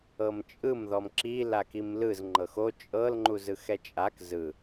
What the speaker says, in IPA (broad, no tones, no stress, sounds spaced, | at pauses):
ɤ m t͡ʃʼ ɯ m ð ɔ m ǁ i l a k i m l ɯ z ŋ͡ǃ ɤ x o t͡ʃʼ ɤ l ŋ͡ǃ u z ɯ x ɛ t͡ʃʼ a k z ɯ